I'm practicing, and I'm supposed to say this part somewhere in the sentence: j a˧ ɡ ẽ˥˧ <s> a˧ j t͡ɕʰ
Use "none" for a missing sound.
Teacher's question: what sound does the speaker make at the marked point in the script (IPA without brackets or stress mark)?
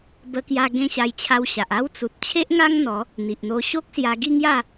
ɕ